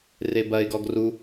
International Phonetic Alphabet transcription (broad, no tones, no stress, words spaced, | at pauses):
rebɐɪ̯ɡɔɡ ru